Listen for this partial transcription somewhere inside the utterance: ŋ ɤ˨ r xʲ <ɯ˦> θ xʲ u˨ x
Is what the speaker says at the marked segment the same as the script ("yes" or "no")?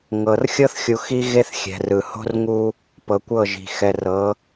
no